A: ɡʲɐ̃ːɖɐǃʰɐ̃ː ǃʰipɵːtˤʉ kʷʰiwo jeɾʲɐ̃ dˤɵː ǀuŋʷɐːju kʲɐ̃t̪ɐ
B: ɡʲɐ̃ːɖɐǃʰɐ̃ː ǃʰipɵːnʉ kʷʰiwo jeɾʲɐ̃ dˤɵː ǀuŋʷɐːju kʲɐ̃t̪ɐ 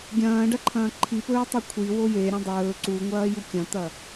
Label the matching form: A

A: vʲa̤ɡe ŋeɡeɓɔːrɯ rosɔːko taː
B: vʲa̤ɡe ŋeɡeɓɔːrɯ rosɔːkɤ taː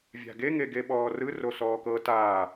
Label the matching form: B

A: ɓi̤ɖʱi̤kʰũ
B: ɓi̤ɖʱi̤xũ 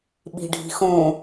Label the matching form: B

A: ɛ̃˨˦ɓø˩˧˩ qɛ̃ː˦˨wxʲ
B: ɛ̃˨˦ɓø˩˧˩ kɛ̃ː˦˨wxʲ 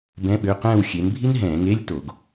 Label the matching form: A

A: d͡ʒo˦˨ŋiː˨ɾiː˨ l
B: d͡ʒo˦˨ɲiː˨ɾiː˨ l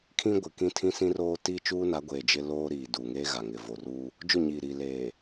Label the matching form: B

